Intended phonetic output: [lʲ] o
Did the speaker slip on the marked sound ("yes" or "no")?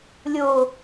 no